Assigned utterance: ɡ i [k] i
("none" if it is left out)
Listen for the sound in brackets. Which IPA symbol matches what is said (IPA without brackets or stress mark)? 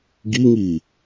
ŋ